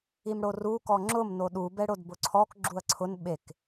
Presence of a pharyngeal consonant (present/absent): absent